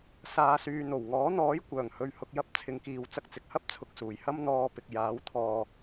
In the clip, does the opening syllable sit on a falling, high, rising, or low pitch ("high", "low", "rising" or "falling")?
low